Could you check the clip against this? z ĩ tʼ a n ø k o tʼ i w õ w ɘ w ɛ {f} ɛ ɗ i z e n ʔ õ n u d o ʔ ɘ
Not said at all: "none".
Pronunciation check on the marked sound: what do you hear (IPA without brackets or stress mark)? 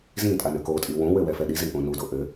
f